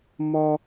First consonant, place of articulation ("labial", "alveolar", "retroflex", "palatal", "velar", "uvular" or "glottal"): labial